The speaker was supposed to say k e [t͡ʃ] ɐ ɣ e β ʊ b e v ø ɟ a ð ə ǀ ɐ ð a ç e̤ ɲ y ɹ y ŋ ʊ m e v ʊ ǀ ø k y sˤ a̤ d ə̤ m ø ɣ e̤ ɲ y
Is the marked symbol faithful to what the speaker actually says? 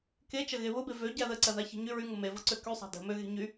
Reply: yes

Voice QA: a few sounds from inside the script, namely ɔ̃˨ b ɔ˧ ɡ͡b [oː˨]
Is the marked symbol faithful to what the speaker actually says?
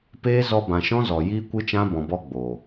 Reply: yes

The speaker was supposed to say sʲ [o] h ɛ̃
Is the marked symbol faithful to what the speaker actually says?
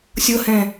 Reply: no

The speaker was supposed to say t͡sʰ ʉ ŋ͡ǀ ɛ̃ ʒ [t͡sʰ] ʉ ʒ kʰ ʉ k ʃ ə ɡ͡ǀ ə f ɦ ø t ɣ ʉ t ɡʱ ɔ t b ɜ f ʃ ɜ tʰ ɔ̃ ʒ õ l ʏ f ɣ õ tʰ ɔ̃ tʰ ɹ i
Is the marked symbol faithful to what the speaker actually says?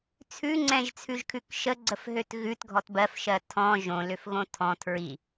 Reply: yes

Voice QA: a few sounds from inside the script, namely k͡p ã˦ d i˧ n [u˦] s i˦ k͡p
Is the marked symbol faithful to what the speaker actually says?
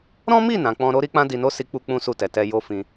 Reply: no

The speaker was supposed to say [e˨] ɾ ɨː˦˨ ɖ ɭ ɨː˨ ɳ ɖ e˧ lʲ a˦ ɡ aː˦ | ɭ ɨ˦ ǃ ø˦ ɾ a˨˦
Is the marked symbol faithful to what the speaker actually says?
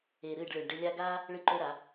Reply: yes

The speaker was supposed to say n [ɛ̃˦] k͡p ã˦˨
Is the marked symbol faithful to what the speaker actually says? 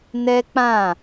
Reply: no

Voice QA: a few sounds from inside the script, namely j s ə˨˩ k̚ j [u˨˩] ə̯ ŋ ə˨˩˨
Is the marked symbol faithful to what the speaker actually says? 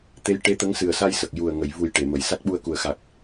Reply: yes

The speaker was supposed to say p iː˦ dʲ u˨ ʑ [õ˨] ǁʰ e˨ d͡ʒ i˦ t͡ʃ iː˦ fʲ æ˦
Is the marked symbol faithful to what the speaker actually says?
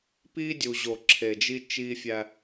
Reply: no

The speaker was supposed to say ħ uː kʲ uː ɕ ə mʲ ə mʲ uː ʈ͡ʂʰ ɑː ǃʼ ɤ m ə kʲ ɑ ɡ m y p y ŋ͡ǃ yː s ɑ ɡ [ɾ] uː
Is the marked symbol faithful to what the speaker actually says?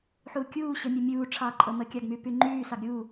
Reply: no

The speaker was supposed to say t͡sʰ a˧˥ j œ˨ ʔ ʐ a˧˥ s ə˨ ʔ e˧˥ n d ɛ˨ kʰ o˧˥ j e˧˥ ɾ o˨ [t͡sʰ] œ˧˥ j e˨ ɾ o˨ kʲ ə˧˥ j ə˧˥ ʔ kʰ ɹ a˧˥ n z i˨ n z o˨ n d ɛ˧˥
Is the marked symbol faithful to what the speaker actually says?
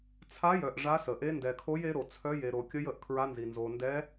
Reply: yes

